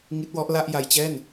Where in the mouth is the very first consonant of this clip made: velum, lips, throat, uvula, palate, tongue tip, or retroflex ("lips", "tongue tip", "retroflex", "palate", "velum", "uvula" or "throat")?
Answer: velum